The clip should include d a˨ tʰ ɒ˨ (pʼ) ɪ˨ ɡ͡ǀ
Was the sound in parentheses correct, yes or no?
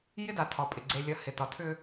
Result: yes